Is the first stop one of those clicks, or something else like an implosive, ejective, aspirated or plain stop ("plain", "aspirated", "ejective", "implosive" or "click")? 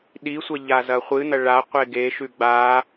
implosive